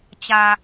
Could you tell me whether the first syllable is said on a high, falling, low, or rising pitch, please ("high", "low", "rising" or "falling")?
low